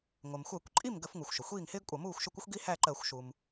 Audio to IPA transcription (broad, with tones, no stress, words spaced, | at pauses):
ŋʷə˩mxʷɜ˧˩˧kʷ ǃʼi˥˩m ɡə˧˩˧fŋu˩xʷ ʃə˩xʷiː˥˩ŋhɪː˥ɡkʷʼʌ˧˩˧ muː˥˩xʷʃə˥˩kʷɪ˥xʷ ɡi˥hæ˥˩ ǃɜ˧˩˧xʷʃu˩m